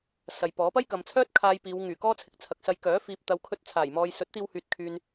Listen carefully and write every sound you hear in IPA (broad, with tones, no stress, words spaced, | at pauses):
sɐ˨jpɔː˨˥ pɐ˥jkɐ˨mt͡sʰœː˥t̚ kʰaː˧jpiː˨˧w ŋyː˨˩kɔː˥ t͡sʰɪ˨k̚t͡sʰɐ˨k̚sɐ˧j kœː˨˥ fiː˨p̚t̪ɐ˨˧wkʰɵ˧t̚t͡sʰaː˨˩j mɔː˨jsɵ˨˥t̚t̪iː˧whyː˨t̚ kʰyː˨n